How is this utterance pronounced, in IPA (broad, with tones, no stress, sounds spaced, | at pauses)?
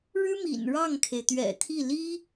ɻ ɻ̩˥ m ḭ˨˩ n ɻ ɑ˥˩ ŋ kʰ e˩ ɪ̯ t̪ ɥ ɛ̰˨˩ t̪ʰ i˥˩ l i˥